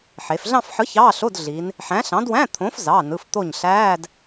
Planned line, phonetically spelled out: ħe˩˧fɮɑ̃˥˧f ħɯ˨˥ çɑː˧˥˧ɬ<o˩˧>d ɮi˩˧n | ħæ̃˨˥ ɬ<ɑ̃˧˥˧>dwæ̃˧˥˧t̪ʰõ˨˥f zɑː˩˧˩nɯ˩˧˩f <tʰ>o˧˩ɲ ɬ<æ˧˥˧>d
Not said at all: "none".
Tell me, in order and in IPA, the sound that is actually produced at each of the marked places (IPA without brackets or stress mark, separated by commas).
o˧˥˧, ɑ̃˨˥, t̪, æː˧˥˧